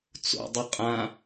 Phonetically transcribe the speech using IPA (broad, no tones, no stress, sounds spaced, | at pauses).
t͡s o̰ dˤ ɪ qʼ ã